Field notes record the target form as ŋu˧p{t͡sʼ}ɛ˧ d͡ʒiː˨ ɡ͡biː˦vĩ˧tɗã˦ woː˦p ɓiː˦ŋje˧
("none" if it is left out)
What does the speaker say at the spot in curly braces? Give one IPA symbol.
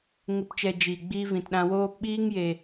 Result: t͡ʃ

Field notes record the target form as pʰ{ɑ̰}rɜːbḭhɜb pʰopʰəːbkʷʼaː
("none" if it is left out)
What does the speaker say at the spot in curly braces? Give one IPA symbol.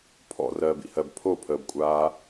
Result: ɔ̰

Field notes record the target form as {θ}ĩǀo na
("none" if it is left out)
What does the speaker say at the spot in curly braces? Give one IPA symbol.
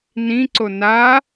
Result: n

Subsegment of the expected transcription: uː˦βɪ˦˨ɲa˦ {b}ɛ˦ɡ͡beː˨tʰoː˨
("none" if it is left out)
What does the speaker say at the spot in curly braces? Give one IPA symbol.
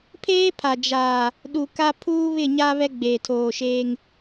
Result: β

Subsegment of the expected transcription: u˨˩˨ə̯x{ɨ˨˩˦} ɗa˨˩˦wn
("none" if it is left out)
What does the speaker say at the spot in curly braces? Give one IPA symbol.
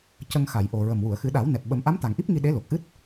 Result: ɨ˨˩˦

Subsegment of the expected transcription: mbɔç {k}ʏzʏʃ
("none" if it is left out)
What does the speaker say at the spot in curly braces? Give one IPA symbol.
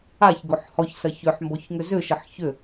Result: ŋ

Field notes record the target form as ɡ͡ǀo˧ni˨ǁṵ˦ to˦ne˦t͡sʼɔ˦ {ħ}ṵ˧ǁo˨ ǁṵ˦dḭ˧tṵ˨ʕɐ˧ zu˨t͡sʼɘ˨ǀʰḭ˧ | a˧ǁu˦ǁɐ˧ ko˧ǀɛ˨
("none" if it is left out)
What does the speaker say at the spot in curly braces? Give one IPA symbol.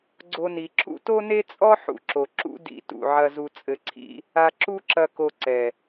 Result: ħ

